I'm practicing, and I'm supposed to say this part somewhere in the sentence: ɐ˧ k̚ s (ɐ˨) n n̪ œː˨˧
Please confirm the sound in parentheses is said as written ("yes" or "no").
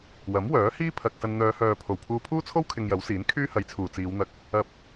no